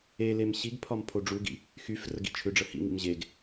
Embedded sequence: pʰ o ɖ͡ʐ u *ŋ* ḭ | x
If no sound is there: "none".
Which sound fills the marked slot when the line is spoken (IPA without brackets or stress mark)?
ɡ